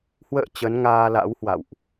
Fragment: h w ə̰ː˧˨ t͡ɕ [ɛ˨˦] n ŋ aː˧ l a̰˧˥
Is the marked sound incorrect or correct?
incorrect